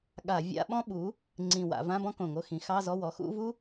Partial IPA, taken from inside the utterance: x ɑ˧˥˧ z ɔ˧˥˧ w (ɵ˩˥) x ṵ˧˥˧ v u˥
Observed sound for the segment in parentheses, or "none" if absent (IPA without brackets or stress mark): ɔ˩˥